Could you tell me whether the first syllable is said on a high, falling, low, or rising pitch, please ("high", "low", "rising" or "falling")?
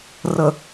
low